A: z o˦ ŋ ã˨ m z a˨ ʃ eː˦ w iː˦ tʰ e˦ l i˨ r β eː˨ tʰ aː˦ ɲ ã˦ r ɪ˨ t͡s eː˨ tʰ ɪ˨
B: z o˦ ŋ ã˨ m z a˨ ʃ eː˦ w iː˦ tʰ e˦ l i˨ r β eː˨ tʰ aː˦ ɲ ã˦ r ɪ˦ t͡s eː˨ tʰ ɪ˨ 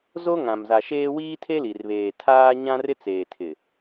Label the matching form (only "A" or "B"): B